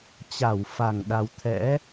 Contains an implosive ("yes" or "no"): yes